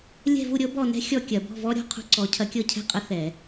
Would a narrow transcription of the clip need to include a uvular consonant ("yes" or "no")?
yes